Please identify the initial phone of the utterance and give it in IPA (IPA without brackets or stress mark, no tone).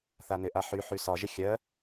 θ